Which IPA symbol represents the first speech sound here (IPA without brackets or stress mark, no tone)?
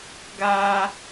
ɡ